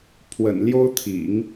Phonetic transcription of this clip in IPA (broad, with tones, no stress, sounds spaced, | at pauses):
pʰ w ə̰˨˩ n l j o˥ ʊ̯ t̪ʰ ḭ˨˩˦ ŋ